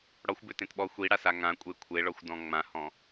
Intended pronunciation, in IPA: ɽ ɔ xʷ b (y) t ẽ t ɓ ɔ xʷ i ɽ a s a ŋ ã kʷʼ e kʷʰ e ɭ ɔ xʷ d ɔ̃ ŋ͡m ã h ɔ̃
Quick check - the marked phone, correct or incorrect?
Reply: incorrect